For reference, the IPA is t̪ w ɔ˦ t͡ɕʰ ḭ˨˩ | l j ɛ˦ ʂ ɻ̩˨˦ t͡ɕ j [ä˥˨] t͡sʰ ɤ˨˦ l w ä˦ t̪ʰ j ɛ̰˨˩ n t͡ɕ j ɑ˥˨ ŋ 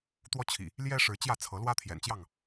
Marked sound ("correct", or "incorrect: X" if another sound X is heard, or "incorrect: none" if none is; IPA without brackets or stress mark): correct